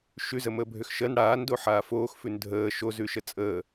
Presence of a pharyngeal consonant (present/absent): present